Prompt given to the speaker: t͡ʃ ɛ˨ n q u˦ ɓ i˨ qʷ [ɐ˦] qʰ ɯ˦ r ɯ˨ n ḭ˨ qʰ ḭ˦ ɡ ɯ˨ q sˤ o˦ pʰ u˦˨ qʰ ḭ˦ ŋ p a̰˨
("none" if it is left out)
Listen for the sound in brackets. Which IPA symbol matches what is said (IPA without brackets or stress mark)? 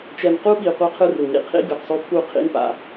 a˦